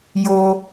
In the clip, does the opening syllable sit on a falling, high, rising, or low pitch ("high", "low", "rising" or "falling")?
low